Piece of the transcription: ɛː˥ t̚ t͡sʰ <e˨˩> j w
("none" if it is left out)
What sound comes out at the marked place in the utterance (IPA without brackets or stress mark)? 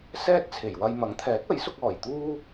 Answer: e˨˩